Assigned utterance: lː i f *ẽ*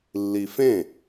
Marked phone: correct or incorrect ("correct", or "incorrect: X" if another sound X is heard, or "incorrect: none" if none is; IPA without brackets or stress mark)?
correct